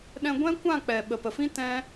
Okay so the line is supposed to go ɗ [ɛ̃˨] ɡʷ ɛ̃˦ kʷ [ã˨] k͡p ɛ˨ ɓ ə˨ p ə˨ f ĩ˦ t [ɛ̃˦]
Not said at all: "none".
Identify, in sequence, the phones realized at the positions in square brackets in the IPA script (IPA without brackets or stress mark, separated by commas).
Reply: ɛ̃˧, ã˦˨, ɛ̃˦